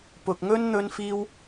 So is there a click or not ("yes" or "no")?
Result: no